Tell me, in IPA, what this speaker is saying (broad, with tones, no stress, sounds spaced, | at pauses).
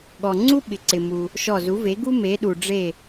ɠ ɔ˩ ŋ͡ǀ u˥ ɓ ɪ˩ ǀ ɪ˩ m u˩ | ʃ ɔ˧˩ z u˩˥ v e˩˥ ɡ u˥ m e˩˧ ɗ u˩ ɖ͡ʐ e˧˩